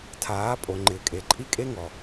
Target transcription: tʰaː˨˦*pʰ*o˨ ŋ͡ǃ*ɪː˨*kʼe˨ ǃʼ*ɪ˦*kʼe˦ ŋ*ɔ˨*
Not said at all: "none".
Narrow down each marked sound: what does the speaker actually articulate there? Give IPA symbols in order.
pʼ, ɪː˨, i˦, ɔ˨

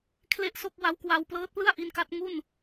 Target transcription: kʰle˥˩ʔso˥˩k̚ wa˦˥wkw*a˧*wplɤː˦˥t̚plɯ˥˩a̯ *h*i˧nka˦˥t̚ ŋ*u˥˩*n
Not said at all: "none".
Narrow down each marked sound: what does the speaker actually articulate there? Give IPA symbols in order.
a˧, ʔ, u˥˩

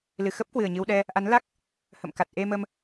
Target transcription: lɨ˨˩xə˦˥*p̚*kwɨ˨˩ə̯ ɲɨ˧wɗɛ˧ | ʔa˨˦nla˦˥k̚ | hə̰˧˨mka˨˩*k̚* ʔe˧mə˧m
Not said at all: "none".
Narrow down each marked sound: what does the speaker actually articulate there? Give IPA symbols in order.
p̚, t̚

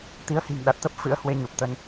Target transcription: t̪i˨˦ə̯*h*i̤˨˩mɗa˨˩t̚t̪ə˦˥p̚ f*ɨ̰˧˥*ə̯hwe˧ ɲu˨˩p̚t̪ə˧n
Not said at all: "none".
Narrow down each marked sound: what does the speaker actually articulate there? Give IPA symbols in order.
h, ɨ̰˧˥

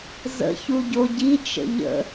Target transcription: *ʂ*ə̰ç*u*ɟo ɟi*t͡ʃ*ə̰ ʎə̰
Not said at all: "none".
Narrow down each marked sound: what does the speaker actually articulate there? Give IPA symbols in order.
z, u, t͡ʃ

